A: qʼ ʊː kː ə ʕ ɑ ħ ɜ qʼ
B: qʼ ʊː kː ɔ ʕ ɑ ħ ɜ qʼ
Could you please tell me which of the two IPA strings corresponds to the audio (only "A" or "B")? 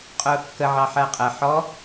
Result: A